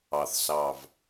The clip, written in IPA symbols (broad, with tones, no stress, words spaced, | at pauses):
ɑ˨˩θsɑ˨˩v